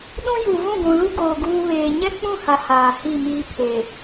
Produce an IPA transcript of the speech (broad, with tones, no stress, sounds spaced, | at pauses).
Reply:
ɗ ũ˦ j u˨ v ũ˦˨ ɡʷ ũ˨ l u˦ ɡ oː˨ ɡ uː˦ β eː˨ ɲ ɛ˦ k͡p ũ˦˨ h a˨ h aː˨ h i˦˨ m iː˦ pʰ eː˨